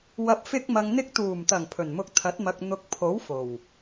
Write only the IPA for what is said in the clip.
w ɐ˨ p̚ f ɪ˧ k̚ m ɐ˨ ŋ n̪ ɪ˧ k̚ t̪ uː˨˩ m t̪ ɐ˨˩ ŋ pʰ ɵ˨˩ n m ʊ˧ k̚ t̪ʰ ɐ˨˥ t̚ m ɐ˨ k̚ n̪ ʊ˨ k̚ pʰ o˨˥ w f o˨˩ w

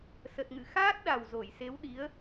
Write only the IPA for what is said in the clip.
s ə˨˩ t̚ ŋ ɨ̰˧˨ x aː˦˥ t̚ ɗ a˨˩ w z o˧˩ j s e˨˦ w ɗ i˨˦ ə̯

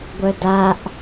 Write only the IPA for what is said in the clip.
ɡʷ œ d a ʔ

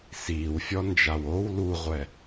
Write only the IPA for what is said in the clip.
s iː w fʲ ɔ n d͡ʒ a w o w l u ʁʷ ɛ

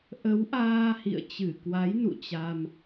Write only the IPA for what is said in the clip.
ʔ ə˨˦ w ʔ aː˧ h ḭ˧˨ ə̯ t͡ɕ ɨ˧˩ k w a˨˦ j n ṵ˧˨ t͡ɕ a˧ m

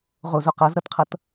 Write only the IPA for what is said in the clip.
ʁ o z o q ʌ z ɾ ʌ t qʰ ʌ t

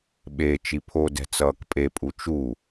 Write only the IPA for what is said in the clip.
ɓ e t͡ʃ i pʰ o d ɛ̤ t͡s ʌː k pʼ e pʼ u t͡ʃ u

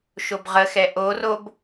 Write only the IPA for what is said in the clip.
ʃ o b ʁ ə x ɛ ʔ o r o b

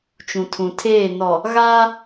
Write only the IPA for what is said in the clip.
t͡ʃ ũ˨ tʰ ũ˨ tʰ eː˦˨ n ɔ˨ | ɣ aː˦

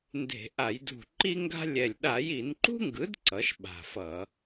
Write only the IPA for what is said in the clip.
n d e̤˧˩˧ ʔ a˧˩˧ j d ṳ˧˩ ǃ i˥ ŋ ɡ a̤˥ lʲ ɛ˧˩ lʲ ɗ a˧˩˧ j i˧˩˧ n ǃ ṳ˥ ŋ ɡ ɯ˩˥ d ǀ ʌ˩˥ ʃ ɓ a̤˧˩ f ʌ˧˩˧

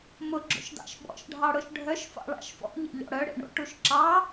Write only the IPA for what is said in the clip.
m ʊ ɡ͡ǁ o̰ ʃ d ɑ̰ ʃ ɓ ɔ̰ ʃ ɖʱ ɑ ɽ ʊ ʃ ɖʱ œ ʃ f ɑ̰ ɭ ɑ̰ ʃ f ɔ̰ ʎ ḛ ʎ ɔ̰ ɽ œ ɽ ḛ ɳ o̰ ʈ u ʃ ǁ ɑ

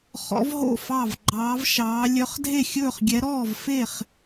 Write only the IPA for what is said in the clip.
χ ɔ̰˧˥ v ɦ o̰˥˨ f ɑ˥˨ v ɡ͡ǃ ɑː˧˥ v ʃ ɑː˧˥ lʲ œ˧˥ χ dʱ e˥˨ xʲ ɵː˥˨ χ ɡʲ ɛ˧˥ ɾ ɔː˥˨ v f e˥˨ χ

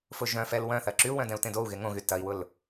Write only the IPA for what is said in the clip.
f ʊ ʒ œ̃ f ɛ l w œ̃ θ ɐ ǁ y u̯ w œ̃ d ɛ̃ u̯ t ẽ d o u̯ ɣ e ŋ õ ɣ y t ɐ i̯ w ʊ l

